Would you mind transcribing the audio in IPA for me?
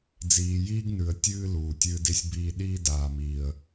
d͡z iː˨ j iː˦ ɡ n ʉ˨ ə̯ tʲ ɨː˦ l uː˨ tʲ ɨː˦ d i˦ sʲ b iː˦ ɗ iː˦ d aː˨ m iː˨ ə̯

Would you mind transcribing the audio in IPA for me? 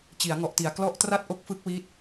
t͡ɕ i˩˦ a̯ ŋ ɔ˨˩ ʔ t i˨˩ a̯ k l ɔ˦˥ ʔ t r a˥˩ t̚ ʔ o˦˥ k̚ f ɯ˦˥ k̚ w i˥˩ t̚

